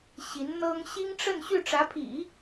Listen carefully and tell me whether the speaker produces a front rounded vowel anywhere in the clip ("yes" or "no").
yes